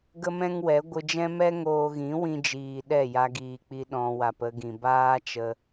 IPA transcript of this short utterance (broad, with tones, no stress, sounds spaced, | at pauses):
ɡ ə˦ m ɛ̃˦ ŋ w ɛ˨˦ ɡʷ ɨ˧ d͡ʒ ɛ̃˦ m ɛ˦ ŋ oː˧ ɣ ĩ˨˦ w ĩ˧ d͡ʒ iː˨ ɗ ɛ˦˨ j a˧ ɡ iː˨ k͡p i˧ ɗ ɔ̃˧ w a˨ p ə˧ ɡ ĩ˨ b aː˦ t͡ʃ ə˧